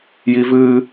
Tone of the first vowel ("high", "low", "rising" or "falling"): high